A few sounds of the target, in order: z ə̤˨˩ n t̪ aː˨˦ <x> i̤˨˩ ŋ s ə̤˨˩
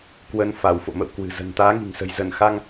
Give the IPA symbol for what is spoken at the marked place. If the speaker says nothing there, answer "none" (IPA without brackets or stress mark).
ŋ